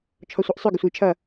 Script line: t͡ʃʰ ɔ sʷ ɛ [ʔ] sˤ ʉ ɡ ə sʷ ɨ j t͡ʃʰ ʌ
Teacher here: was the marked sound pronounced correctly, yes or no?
yes